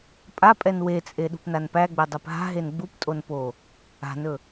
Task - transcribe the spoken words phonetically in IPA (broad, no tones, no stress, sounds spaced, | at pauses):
pʼ a pʼ ɛ n w e t͡sʼ e ɗ ṳ p n a n p æ ɡ͡b e dˤ ɛ p ɦ a̤ ɦ e n ɡ͡b u p tʼ o n p o | a̤ n ɵ